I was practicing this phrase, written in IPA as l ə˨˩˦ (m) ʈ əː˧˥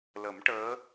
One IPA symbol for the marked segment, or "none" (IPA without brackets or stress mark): m